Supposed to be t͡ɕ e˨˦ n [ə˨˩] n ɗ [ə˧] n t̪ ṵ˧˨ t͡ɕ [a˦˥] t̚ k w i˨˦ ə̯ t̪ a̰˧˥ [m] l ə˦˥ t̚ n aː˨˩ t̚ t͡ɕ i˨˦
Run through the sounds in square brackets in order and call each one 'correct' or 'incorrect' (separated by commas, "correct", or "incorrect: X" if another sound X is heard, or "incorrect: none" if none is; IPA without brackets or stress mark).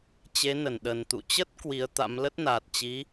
incorrect: ə˧˩, incorrect: ə˨˩, incorrect: ə˦˥, correct